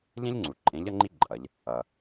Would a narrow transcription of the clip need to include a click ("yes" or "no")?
yes